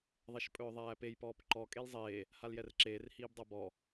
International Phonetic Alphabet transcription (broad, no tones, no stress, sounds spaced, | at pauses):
ðˤ ɛ ʃ pʼ ɵː ðˤ æː p e j p ɔː p ǃ ɔ kʼ e l zˤ eː | h a l j ɛ r ǁ eː r h iː b dˤ a b ɔ